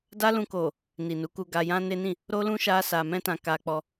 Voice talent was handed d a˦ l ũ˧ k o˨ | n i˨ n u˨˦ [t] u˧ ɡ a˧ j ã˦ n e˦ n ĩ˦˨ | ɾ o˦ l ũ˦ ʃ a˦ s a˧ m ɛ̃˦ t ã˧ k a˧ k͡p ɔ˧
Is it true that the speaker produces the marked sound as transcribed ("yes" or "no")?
no